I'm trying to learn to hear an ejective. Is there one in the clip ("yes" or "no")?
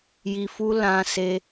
no